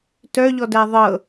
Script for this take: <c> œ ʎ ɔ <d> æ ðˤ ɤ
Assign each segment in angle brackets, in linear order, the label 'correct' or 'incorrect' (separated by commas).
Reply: incorrect, correct